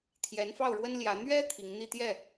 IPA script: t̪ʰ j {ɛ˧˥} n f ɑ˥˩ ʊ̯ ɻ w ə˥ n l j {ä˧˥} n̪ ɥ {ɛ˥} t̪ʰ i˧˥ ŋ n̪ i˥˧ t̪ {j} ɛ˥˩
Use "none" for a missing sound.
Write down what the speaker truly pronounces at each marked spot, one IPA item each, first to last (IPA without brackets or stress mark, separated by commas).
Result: ɛ˧˥, ä˧˥, ɛ˥, j